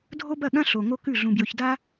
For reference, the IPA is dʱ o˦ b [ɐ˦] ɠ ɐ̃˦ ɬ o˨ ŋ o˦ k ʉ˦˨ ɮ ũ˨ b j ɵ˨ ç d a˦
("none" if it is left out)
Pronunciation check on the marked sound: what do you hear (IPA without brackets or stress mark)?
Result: ɐ˦˨